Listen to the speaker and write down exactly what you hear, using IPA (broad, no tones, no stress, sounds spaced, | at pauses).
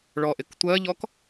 ɭ ɔ ʔ ɪ k tʷ ɜ ʎ ɔ k